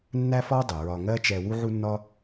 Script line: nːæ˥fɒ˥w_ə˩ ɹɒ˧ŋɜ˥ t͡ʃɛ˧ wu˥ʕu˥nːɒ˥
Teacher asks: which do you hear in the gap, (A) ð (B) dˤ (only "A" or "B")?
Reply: B